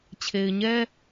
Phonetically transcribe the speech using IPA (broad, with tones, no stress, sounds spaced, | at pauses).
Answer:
t͡ɕʰ e˨ ɪ̯ ɲ ɛ˦